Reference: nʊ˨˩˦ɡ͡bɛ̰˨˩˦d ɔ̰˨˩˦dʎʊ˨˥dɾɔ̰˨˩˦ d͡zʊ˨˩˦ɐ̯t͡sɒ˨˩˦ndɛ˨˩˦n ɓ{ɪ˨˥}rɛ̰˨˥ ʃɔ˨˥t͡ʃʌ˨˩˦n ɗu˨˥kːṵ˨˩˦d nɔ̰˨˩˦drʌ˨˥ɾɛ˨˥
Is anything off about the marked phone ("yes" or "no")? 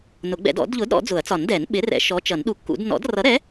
no